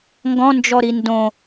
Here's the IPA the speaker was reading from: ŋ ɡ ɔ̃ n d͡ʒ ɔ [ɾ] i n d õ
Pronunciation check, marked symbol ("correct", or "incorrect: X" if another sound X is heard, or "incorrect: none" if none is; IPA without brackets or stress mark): correct